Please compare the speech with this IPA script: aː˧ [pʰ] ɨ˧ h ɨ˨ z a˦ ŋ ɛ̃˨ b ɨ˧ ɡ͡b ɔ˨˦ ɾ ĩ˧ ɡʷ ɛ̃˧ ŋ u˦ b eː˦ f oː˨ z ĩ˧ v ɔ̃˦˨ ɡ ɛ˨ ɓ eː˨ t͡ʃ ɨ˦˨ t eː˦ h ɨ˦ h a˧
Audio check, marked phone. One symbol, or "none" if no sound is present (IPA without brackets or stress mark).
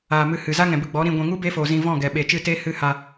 m